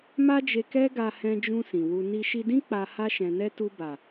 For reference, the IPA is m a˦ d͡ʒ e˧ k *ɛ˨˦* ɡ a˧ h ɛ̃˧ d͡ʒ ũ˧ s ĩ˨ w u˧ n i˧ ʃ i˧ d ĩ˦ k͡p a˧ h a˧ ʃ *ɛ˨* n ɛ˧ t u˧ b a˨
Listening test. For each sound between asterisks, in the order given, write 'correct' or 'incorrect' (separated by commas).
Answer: incorrect, incorrect